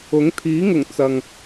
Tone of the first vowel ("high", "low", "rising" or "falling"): rising